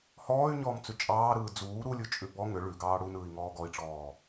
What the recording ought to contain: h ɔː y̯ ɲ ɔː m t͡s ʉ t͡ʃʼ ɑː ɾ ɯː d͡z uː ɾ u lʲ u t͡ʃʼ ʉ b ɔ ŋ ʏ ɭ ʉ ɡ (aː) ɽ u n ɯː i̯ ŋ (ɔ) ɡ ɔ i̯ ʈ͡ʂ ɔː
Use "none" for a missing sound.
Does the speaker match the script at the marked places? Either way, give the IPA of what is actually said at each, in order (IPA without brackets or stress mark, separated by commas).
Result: ɑː, ɔː